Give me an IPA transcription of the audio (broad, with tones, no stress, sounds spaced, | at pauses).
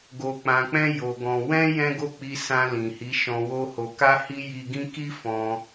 ɡ o˧ k͡p ã˧ k͡p ɛ̃˦ j o˧ ɡ ɔ̃˧ w ɛ̃˦ j ɛ̃˦ ɡ o˦˨ k͡p i˧ s ã˧ l ĩ˨ h i˨˦ ʃ ɔ̃˧ w o˦ h o˧ k a˦ h i˦ j i˧ ɡ ĩ˦ k i˦ f ɔ̃˧